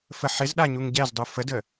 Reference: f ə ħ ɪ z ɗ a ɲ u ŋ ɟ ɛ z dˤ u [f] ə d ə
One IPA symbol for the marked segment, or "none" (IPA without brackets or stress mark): f